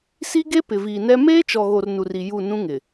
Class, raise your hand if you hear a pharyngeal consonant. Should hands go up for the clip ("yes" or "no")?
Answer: no